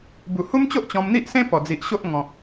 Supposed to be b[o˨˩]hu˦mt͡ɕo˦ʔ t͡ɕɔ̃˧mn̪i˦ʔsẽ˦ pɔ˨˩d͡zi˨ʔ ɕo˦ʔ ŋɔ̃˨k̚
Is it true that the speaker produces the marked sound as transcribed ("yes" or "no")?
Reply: no